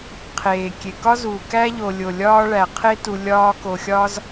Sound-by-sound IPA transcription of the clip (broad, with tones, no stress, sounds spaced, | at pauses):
qʰ eː˩ kʲ e˩ k ɒ˥ z uː˩ k æ˥ ʎ o˨ lʲ o˩ lʲ ɒː˦ ɭ æ˩ qʰ e˥ t u˨ lʲ ɒː˦ k o˨ xʲ ɒ˥ z